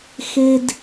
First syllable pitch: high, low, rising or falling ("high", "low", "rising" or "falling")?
high